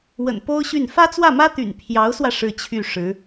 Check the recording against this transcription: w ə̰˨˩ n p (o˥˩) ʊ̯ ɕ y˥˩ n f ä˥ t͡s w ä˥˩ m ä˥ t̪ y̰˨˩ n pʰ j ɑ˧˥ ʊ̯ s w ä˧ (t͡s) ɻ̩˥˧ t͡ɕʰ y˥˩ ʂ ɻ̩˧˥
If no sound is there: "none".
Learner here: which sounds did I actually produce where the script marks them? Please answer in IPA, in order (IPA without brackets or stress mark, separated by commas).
o˥, ʂ